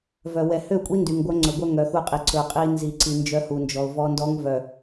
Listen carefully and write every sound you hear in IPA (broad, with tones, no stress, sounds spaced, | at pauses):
v œ˨ w ɛ˨ h ø˦˨ kʷʼ i˦ n d y˨ ŋ ɡʷ œ˦ ŋ͡ǀ ɵ˨ ɡʷ œ˦ ŋ œ˨ x u˦˨ qʼ i˨ ǀ ɵ˨ qʼ i˦ n z i˨ ǀ i˨ n d͡ʒ œ˦ h u˨ n d͡ʒ ɔ˨ ʊ̯ v ɔ˦ n d ɔ˦ ŋ v œ˨